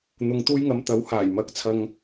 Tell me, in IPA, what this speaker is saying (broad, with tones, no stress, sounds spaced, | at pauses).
n̪ ʊ˨ ŋ t̪ uː˧ j ŋ ɐ˨˧ m t̪ ɐ˨˥ w h aː˨˩ j m ɐ˨˥ k̚ t͡sʰ ɐ˨ ŋ